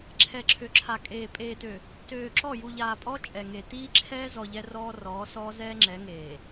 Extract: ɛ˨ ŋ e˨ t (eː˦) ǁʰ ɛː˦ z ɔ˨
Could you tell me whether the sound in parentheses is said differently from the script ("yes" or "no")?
yes